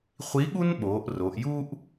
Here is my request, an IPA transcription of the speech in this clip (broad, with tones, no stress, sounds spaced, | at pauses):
χʷ i˨˥ ɠ u˥ n ɓ oː˩˧ ʔ r o˩˧ ʔ j u˥ ʔ